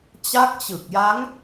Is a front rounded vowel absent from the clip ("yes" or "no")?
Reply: yes